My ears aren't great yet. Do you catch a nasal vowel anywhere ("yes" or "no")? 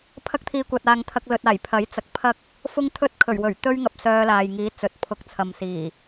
no